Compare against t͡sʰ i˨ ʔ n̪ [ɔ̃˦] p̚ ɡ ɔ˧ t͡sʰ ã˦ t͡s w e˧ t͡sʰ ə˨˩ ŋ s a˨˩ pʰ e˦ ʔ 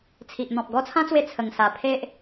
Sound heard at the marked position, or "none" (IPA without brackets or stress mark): ɔ̃˨